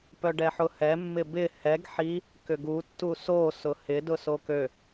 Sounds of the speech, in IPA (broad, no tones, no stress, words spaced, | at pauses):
pœɖɛħʊhɛ mːɪbɪ hɛɡ ħi | kʏɡu tːuso sʊhɪ dʊsokø